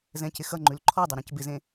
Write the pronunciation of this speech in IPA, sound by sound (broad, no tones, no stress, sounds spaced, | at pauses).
z ɛ̃ c ɪ x ʌ ŋ͡ǃ ʉ l ǃʰ ɔ dˤ ʌ ɾ ɛ̃ c b ɪ z ẽ